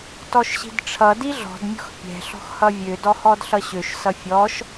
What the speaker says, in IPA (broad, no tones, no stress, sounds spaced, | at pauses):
t ɔ ʃ ɕ i̤ d ʈ͡ʂʰ ʌ d i ɮ ɔ̤ d mʲ ɔ̤ x pʲ ɛ̤ ɬ ɔ̤ x h ʌ vʲ ø d ɔ h ɔ d ɬ ʌ ɕ ø ʃ s ʌ fʲ ɔ ʃ